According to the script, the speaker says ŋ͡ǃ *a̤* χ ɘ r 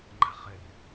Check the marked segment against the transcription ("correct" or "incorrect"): correct